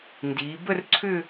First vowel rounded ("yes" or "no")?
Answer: no